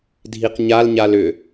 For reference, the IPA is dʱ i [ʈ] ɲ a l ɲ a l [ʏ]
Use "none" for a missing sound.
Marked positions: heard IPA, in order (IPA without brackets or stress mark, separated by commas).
q, ʏ